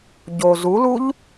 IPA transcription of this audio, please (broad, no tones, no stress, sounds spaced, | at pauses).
ɟ o z u l u ʎ